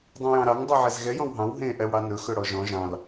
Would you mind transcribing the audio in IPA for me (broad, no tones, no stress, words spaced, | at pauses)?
dˤẽjɑ̃ɾɑŋ dˤʉʕɛzɣɛ jɔ̃wɦɑ̃w ɦẽ ʔɛwɽɑnɵ xɵɽɔʒɔ̃ ʒɑ̃l